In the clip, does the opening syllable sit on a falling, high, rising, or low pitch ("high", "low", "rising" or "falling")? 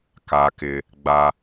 high